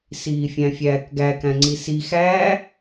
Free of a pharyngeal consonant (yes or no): yes